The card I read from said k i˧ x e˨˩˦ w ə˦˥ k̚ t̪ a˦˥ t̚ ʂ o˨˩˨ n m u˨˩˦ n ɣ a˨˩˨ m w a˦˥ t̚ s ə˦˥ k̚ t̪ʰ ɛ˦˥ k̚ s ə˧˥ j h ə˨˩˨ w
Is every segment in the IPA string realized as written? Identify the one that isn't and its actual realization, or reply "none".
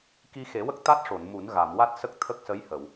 ɛ˦˥ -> ə˦˥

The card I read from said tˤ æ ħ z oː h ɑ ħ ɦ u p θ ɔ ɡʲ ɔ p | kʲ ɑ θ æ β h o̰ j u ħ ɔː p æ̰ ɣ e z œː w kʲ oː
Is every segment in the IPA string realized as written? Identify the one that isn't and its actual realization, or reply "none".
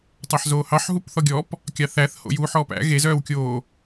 β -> θ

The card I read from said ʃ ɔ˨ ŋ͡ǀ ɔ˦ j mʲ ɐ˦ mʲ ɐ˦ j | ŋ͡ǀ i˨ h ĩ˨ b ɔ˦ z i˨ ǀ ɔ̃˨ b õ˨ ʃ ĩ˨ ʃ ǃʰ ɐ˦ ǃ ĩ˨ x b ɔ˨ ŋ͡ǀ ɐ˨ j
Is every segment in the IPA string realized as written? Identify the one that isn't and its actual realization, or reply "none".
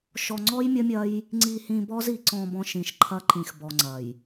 õ˨ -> ɔ̃˨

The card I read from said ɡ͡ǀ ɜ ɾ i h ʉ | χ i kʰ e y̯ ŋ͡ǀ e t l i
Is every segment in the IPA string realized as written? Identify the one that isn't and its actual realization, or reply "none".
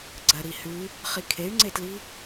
none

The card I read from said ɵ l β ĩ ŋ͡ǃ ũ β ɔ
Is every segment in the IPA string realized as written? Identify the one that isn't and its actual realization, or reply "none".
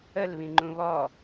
ɵ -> ə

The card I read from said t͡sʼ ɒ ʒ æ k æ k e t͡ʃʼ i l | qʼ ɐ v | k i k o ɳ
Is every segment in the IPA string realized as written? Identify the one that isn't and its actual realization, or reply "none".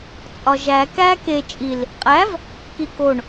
ɐ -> æ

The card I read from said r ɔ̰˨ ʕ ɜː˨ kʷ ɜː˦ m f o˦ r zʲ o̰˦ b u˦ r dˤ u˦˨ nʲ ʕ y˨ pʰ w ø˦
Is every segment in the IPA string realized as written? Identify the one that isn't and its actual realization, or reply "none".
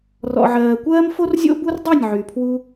ø˦ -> u˦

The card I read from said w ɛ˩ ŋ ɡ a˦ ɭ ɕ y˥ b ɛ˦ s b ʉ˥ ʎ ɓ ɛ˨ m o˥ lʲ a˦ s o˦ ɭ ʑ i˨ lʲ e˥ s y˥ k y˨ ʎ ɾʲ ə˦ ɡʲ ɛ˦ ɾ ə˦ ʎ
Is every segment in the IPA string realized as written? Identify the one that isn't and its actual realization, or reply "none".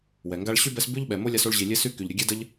ɾ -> d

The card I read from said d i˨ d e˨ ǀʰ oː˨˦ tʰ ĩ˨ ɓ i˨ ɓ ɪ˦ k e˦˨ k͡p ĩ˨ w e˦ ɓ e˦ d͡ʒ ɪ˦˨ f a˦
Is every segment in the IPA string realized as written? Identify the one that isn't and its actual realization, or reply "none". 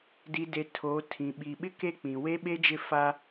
ǀʰ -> tʰ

